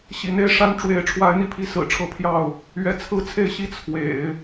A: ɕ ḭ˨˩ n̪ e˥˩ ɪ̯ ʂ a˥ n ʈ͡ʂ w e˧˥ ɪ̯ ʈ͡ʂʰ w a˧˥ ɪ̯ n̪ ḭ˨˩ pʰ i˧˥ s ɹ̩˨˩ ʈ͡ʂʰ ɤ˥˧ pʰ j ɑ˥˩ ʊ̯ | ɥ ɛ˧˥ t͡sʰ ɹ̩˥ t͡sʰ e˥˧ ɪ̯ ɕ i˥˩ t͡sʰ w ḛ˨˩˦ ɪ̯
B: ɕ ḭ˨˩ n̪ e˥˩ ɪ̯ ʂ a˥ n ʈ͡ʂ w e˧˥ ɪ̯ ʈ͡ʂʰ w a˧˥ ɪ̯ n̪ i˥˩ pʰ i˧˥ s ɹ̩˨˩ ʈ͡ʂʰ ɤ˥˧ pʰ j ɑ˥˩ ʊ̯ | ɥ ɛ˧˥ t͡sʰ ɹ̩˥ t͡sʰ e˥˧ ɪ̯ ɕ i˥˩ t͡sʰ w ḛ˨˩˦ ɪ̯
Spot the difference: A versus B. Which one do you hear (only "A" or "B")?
B